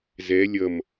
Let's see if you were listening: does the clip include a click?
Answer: no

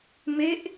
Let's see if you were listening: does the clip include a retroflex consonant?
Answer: no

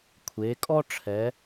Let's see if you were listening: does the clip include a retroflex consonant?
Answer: yes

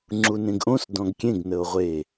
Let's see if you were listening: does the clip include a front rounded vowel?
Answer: no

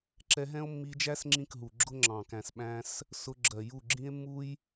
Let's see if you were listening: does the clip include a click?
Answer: yes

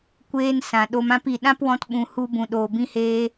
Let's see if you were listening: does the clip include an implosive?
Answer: yes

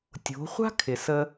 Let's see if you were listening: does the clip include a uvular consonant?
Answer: yes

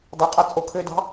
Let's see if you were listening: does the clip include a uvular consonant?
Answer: yes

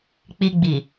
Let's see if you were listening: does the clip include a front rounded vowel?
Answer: no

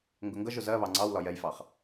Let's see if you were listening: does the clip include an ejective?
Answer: no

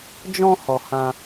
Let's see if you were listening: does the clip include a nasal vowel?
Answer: yes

